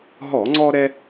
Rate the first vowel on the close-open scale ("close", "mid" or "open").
mid